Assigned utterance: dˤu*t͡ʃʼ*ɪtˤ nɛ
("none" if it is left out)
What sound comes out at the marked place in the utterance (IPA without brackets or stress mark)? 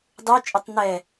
t͡ʃʼ